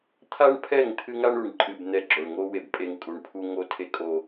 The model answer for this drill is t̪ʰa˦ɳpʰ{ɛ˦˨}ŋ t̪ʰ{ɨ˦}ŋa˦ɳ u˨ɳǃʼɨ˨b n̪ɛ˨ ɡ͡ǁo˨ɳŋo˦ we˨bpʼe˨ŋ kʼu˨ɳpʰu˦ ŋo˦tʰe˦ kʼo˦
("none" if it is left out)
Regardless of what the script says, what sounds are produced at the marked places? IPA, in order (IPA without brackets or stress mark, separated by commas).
ɛ˦˨, ɨ˦